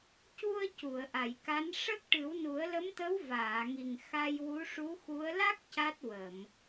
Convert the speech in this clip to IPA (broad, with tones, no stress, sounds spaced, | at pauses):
c u˧ ə̯ c u˨˩˨ ə̯ ʔ a˨˩˨ j k a˧˥ n ʂ ə˦˥ k̚ ʈ ɨ˨˩˦ w n u˨˩˦ ə̯ l ə˧˥ m t̪ ə˧˥ w v aː˨˩˨ ŋ i˨˩ ŋ x a˧ j w u˧˥ ʂ u˧˥ x u˧˥ ə̯ l a˦˥ k̚ c a˦˥ t̚ w ə˨˩˨ m